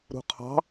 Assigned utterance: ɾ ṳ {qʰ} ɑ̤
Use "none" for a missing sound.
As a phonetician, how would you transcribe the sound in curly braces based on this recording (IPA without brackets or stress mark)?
qʰ